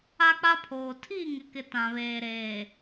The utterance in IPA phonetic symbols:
a˦ k͡p a˦ pʰ oː˨ tʰ iː˦˨ ŋ ɪ˨ k ɪ˨ t ã˨ β eː˨ ɾ eː˨

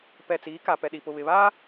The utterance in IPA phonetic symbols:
p ɛ˨ t͡s iː˨˦ k a˨ p ɛ˨ ɗ i˨ p ʊ˨ β ɪ˨ β a˦

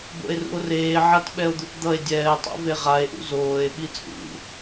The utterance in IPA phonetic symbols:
b o̰ e̯ r ṵ o̯ r eː ʕ a t ɓ ɛ o̯ d̪ u t d̪ ʌ e̯ dʲ ɛː tˤ o̰ v e ʁ a e̯ ʔ ṵ z oː e̯ ɓ i t͡sʼ ṵ

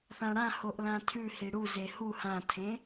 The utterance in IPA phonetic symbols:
θ ã ɽ ã h o ʔ l ã tʰ ʉ h i ɽ u z e h u h ã tʰ ẽ

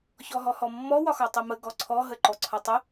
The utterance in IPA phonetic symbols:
ç ɔ ɦ ɔ h ɔ mː ɔ w ɒ x ɒ tˤ i m ə ɡ ɔ ǀʰ ɔ ɦ ə ǃ ɔ ǀʰ ɒ tˤ ə

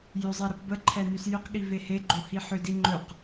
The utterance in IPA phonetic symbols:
j ʏ zˤ e ɾ ə p b ə ǃʰ ɛ n y s j ʏ q ɠ i v e h e ɡ͡ǃ o h i ħ ʏ d i ŋ͡ǃ ɵ q

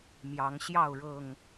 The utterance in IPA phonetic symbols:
m j ɑ˨˦ ŋ ɕ j ɑ˥˨ ʊ̯ ɻ ɤ˨˩ ŋ

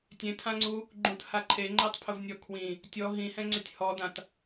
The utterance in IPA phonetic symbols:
tʲ ẽ tʰ ã ŋ͡ǀ u | ɡ͡ǃ ũ t h a ǃʰ e ŋ͡ǃ e tˤ pʰ ʊ v nʲ ɔ kʰ w ĩ | tʲ ɔ ɦ ĩ h ɛ̃ ŋ͡ǀ ɪ tʲ h ɔ d ã t

